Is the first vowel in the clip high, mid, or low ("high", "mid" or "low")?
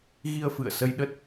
high